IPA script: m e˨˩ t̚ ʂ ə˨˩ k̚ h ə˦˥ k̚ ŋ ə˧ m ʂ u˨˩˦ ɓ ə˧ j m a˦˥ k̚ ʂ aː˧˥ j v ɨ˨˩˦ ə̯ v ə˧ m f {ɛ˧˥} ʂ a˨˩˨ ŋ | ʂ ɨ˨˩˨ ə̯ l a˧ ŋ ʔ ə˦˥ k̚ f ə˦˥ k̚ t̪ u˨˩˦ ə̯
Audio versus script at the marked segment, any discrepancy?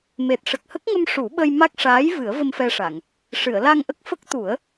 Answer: yes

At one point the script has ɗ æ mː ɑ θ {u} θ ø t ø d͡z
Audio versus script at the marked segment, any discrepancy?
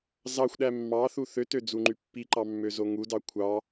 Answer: no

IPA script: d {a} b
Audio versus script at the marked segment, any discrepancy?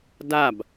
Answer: no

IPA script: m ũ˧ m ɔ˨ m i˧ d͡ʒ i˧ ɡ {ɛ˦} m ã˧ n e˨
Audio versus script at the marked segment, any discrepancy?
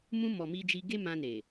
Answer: yes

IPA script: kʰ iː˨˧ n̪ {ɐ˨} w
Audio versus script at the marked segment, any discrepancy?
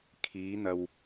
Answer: no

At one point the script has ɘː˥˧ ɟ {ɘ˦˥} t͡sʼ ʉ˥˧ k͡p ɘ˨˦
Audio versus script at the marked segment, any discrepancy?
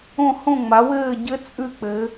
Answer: no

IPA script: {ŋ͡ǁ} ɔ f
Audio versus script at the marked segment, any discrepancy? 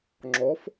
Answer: no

